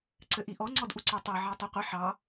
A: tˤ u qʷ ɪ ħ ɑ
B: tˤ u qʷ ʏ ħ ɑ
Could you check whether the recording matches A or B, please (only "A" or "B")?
A